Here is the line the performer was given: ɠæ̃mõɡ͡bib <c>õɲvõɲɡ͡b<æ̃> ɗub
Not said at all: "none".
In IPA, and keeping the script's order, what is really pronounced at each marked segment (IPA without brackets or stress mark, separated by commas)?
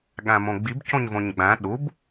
c, æ̃